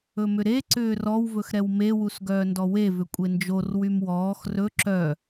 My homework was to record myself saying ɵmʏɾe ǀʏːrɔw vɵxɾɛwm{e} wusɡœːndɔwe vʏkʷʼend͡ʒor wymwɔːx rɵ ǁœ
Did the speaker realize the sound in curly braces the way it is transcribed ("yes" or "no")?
yes